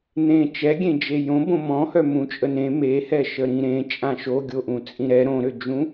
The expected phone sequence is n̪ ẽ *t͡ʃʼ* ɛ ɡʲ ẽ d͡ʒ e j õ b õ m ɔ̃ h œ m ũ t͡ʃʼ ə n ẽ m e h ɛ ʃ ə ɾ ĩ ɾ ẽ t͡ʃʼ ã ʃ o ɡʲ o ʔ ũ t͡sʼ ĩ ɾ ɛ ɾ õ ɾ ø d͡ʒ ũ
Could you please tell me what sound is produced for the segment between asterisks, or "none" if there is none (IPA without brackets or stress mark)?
t͡ʃ